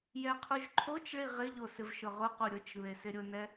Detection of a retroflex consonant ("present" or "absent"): present